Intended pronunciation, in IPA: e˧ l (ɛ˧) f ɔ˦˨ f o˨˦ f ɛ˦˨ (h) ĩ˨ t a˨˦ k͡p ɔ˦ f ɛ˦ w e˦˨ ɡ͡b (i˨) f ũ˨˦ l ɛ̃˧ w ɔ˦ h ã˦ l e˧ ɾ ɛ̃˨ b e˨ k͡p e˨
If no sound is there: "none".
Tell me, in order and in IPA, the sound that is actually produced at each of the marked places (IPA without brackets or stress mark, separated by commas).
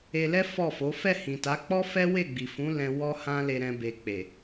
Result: ɛ˦, h, i˨